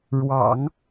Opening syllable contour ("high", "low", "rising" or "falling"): low